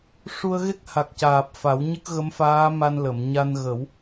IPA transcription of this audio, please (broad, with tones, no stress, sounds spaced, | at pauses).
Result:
ʂ u˧ ə̯ ɣ e˦˥ k̚ h a˨˩ k̚ c aː˨˩ p̚ f a˨˩˦ w ɲ ə˦˥ k̚ ɣ ə˧˥ m f aː˧˥ m a˧ n l ə˨˩˨ m ɲ a˧ n ɣ ə˨˩˦ w